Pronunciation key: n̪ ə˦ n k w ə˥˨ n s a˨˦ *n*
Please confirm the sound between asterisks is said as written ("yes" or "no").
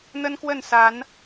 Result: yes